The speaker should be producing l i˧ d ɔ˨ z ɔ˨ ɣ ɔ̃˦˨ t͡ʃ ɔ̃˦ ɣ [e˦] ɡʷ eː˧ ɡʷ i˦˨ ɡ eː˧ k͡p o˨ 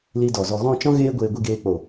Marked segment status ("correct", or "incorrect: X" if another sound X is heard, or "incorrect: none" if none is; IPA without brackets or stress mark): incorrect: eː˦